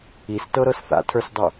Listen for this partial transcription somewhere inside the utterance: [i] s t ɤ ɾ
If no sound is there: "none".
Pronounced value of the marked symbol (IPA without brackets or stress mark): i